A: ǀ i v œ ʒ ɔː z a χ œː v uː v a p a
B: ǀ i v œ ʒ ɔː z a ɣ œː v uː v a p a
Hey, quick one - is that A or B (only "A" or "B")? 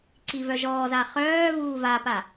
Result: A